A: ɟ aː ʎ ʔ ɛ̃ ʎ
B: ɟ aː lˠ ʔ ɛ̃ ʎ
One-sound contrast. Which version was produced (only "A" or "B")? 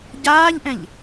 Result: A